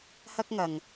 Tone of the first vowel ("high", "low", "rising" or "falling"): high